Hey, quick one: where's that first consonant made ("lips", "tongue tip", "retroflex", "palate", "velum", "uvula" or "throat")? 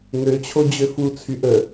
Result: velum